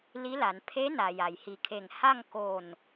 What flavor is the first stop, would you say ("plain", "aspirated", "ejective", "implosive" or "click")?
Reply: aspirated